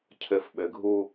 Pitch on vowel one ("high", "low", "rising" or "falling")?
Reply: low